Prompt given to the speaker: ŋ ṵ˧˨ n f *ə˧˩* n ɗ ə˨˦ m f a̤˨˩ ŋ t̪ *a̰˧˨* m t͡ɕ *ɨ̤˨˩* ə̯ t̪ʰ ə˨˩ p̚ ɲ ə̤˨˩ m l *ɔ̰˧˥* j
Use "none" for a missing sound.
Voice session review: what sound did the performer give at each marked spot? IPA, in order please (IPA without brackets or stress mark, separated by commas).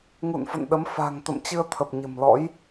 ə̰˧˨, ə̰˧˨, ɨ˧, ɔ̰˧˥